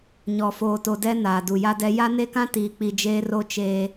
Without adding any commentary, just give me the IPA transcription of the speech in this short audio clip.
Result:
ɲ ɔ˨ f oː˨ t o˨ d ɛ˦ n aː˨ d u˨ j a˦ d ɛ˦ j a˦ n e˦ k ã˦ t iː˨ k͡p i˨ d͡ʒ eː˦ r o˦ t͡ʃ eː˦

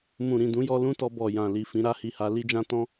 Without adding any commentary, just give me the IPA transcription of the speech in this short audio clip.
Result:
m ũ˨ ɾ ĩ˨ d ũ˨˦ j ɔ˦ l ũ˦ t ɔ˧ b ɔ˨ j ã˨ l i˨ f ĩ˧ ɾ a˦ h i˧ h a˧ l i˦ d͡ʒ ã˦ t ɔ̃˦

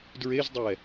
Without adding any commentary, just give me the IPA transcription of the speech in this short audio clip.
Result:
d ɹ e z dˤ ɛ

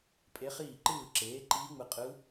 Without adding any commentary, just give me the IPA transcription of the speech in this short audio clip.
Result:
pʼ e˧˥ χ iː˥˩ ǃ ɯː˥˩ ǁ eː˩˥ ǃ iː˧˥ ŋ͡m ɯ˩˥ qʼ ɯ˧˥

